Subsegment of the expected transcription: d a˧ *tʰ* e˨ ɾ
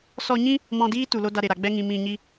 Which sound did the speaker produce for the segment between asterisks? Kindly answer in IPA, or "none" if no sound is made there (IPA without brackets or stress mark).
ɾ